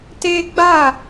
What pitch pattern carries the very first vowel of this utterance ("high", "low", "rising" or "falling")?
high